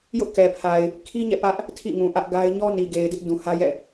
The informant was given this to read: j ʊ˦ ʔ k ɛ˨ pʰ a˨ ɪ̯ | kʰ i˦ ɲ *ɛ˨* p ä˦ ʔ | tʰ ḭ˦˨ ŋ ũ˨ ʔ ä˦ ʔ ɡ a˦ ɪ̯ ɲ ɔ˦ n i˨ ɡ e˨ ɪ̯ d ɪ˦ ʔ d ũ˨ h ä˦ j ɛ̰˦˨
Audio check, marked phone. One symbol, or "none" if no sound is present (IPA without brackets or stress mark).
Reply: ɛ̰˦˨